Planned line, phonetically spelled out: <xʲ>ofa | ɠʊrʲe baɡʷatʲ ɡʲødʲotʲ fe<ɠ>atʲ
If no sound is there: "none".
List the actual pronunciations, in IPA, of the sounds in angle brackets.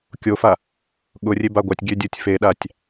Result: kʲ, ɗ

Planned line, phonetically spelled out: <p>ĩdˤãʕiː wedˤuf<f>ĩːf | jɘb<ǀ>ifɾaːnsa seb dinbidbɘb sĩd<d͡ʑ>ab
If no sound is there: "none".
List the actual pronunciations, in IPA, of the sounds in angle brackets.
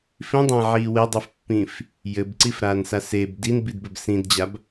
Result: f, pː, ǀ, d͡ʑ

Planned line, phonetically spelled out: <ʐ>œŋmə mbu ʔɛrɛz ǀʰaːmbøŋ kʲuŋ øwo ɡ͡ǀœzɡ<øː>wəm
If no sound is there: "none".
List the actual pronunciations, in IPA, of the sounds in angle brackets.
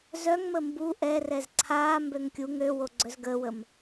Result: z, əː

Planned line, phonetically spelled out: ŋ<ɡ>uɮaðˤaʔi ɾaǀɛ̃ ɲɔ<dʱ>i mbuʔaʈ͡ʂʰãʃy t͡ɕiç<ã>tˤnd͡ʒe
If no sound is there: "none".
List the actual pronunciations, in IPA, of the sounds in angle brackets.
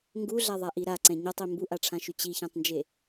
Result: ɡ, tˤ, ã

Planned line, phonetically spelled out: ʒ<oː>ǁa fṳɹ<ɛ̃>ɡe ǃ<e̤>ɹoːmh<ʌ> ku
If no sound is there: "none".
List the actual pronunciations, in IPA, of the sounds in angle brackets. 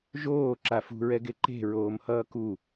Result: oː, ɛ, e̤, ʌː

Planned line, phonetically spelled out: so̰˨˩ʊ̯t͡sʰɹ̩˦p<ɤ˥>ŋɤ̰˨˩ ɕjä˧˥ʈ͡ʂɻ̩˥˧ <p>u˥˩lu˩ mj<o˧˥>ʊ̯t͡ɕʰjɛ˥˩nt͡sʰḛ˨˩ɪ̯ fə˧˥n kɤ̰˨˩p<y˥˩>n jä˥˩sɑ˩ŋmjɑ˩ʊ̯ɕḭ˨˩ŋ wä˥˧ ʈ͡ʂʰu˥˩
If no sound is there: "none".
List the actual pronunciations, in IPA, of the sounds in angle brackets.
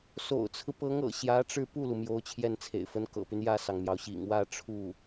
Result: ɤ˧˥, p, o˧˥, y˦

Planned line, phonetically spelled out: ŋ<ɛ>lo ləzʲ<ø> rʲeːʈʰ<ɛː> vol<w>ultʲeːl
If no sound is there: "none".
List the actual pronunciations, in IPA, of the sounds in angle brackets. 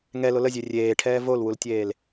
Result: ɛ, ø, ɛː, w

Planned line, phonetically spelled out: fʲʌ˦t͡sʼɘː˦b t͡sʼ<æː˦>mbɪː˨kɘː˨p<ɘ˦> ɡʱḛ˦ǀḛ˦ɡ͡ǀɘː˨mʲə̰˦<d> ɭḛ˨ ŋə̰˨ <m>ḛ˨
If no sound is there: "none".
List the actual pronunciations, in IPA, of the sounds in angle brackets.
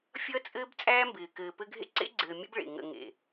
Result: æː˦, ɘ˦, b, ŋ

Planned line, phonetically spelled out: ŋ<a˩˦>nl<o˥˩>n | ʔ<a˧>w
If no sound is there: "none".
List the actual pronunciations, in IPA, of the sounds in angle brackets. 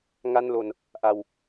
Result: a˥˩, o˧, a˧

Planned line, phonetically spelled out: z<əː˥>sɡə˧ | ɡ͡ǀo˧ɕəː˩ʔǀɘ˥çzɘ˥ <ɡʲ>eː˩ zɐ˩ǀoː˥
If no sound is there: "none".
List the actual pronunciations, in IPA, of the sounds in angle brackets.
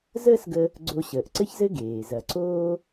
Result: əː˥, ɡ

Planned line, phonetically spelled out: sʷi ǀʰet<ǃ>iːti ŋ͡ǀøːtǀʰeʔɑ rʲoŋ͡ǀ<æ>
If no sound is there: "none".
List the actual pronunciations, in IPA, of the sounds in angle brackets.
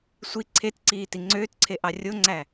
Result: ǀ, æ

